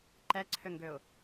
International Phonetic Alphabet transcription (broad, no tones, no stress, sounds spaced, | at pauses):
ǃ ɛ ǀʰ ø ŋ ɡ ø ʊ̯